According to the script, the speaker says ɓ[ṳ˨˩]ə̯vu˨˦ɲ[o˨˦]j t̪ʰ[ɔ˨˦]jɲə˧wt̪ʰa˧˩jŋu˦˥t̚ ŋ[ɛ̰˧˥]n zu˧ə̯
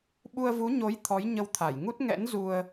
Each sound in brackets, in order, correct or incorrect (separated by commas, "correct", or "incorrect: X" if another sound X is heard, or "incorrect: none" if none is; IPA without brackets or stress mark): incorrect: u˧, correct, correct, correct